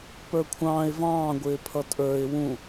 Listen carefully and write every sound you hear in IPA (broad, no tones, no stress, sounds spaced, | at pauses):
p ə˞ kʷʰ ɑ̃ː ɪ̯ v ɑ̃ː ɡʷ ɪː pʰ ʌ tʼ ə˞ ɪ̯ w ũ